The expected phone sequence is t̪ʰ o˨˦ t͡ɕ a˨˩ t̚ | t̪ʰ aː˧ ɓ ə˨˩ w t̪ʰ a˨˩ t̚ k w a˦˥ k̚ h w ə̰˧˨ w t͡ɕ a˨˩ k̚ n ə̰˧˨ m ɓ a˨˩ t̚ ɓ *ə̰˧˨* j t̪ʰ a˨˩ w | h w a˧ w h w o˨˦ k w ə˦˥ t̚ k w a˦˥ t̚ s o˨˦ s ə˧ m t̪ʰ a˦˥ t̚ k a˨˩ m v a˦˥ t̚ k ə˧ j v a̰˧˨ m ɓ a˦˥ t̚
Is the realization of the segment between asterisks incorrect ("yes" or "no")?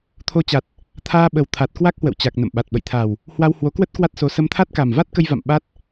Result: no